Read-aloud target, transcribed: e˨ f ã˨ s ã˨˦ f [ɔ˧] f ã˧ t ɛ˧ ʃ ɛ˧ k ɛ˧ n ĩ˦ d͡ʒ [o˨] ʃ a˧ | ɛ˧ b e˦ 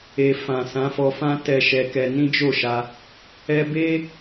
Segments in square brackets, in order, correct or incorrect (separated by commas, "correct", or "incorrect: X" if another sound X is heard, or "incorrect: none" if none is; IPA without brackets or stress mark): correct, incorrect: o˦˨